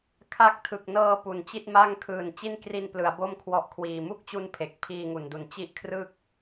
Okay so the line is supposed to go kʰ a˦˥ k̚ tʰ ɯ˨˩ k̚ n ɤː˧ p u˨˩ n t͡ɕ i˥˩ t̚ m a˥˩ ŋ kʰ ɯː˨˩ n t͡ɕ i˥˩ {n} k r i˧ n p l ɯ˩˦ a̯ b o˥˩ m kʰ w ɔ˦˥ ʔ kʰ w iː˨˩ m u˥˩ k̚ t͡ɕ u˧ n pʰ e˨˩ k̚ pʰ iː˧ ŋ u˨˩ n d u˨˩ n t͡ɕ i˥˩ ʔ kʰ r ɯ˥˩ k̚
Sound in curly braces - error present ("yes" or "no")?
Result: no